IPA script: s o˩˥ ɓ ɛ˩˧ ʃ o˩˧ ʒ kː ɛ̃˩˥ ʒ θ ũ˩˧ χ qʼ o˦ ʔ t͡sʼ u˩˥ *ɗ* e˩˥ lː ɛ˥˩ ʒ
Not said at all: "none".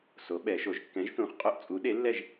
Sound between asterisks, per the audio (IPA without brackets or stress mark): ɗ